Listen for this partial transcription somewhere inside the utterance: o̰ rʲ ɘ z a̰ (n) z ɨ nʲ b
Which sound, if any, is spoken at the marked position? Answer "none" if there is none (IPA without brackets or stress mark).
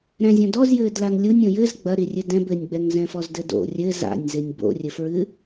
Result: nʲ